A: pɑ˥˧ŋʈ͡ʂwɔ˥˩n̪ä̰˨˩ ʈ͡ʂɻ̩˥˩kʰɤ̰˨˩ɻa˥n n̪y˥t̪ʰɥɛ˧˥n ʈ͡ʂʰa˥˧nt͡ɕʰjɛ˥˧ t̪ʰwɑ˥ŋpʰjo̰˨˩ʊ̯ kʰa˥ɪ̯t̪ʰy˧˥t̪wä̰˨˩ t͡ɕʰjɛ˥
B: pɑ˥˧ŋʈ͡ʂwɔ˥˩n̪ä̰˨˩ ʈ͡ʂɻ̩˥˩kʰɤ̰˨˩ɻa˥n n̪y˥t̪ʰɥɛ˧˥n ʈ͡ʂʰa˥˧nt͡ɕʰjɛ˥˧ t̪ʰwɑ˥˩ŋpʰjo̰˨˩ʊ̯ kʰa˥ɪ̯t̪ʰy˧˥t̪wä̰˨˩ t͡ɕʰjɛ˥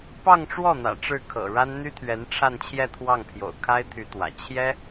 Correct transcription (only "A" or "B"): B